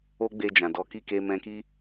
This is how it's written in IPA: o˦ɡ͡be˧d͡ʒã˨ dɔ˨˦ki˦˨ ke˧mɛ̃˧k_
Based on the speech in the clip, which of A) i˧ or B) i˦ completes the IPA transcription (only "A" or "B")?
B